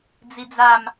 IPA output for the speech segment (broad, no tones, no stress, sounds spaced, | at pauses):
d͡z i d͡z a m